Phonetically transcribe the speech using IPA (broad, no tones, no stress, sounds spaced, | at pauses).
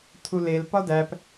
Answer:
tʰ u l e l p ɒ d æ p